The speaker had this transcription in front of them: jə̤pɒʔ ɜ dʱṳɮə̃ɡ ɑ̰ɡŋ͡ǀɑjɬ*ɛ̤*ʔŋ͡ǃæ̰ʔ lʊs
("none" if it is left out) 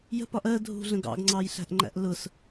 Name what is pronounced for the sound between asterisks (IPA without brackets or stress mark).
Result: æ̤